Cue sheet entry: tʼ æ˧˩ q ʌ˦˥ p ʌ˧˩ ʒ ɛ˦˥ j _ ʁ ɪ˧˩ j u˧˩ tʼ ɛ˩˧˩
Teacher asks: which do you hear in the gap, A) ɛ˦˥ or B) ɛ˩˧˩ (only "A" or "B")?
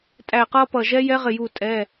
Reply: A